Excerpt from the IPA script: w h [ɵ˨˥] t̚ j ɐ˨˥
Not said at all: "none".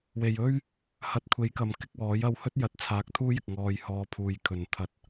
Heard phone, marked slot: ɵ˥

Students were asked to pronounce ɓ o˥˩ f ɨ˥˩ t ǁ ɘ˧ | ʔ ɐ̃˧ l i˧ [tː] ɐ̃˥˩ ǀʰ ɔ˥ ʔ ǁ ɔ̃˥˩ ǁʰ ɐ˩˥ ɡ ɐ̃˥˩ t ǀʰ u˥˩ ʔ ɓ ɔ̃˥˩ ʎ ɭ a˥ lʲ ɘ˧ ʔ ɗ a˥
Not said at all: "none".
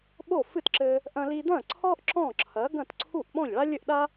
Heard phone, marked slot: d̪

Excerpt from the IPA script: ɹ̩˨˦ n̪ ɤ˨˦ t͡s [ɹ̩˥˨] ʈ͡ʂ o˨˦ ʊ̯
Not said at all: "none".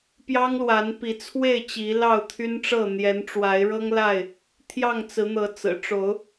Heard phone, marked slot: ɹ̩˨˩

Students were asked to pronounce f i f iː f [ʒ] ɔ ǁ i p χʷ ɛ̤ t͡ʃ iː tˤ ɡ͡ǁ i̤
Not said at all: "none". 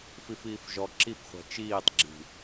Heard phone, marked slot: ʒ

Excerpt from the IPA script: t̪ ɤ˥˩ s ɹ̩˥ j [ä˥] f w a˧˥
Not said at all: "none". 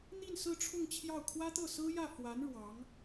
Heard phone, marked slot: ä˥˩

